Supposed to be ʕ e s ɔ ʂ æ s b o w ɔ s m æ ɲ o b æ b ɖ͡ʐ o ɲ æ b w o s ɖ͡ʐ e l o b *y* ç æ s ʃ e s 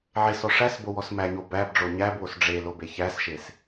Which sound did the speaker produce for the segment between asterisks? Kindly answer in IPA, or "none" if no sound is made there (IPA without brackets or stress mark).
e